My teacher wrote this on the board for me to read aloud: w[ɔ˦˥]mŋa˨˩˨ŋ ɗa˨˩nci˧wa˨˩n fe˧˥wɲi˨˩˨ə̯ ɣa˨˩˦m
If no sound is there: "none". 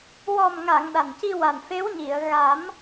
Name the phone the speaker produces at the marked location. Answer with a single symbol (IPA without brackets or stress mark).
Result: ɔ˨˩